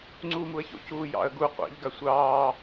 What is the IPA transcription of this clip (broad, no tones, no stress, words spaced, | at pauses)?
ŋ͡ǀuːmuə̯ço̰ cuːjɑ̰ə̯ɡu qʷa̰ʎ ɡasʷɑː